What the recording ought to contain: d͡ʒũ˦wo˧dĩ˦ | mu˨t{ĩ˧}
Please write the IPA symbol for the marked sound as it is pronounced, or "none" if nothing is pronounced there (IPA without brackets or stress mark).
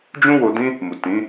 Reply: ĩ˨˦